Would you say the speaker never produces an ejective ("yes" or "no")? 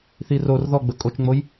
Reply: no